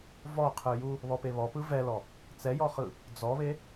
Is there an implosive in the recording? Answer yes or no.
no